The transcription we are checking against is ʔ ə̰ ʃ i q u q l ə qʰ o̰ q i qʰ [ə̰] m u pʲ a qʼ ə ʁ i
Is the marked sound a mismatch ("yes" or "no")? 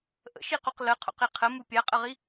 yes